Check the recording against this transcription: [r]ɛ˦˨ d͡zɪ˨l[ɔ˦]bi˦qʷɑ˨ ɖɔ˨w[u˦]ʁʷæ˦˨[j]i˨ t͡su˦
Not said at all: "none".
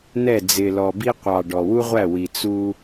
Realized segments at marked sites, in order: n̪, ɔ˨, u˦, w

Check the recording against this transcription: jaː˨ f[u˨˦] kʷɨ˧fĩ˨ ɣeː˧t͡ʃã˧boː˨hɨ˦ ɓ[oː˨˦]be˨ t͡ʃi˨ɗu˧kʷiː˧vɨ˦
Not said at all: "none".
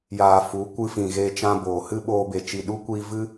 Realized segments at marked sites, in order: u˨˦, oː˧

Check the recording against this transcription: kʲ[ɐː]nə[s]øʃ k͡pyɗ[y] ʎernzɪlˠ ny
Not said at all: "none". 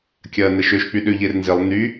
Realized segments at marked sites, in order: ɐː, ʃ, ʏ

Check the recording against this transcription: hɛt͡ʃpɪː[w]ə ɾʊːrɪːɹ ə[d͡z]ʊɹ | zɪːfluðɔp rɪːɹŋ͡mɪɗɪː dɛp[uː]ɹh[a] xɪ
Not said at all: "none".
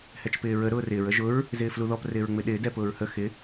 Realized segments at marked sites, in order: ɹ, ʒ, ʊː, ə

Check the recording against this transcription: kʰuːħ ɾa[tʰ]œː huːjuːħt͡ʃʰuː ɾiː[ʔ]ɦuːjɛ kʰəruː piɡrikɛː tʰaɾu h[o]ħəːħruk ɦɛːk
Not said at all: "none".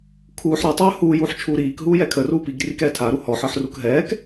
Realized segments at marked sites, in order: tˤ, k, ɔ

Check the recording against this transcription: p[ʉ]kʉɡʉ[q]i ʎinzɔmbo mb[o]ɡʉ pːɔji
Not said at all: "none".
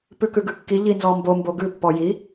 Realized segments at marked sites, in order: ʉ, kː, o

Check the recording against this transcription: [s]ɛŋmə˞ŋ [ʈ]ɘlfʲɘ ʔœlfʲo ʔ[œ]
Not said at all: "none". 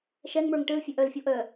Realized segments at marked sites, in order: ʃ, ʈ, œ

